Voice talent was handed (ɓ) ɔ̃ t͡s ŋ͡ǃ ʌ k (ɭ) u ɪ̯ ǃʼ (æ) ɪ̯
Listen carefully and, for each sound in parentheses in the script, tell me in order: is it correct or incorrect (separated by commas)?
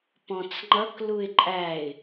incorrect, incorrect, correct